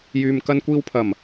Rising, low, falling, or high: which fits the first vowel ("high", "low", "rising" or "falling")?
low